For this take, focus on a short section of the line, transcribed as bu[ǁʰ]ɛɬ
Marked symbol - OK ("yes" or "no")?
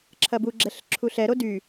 no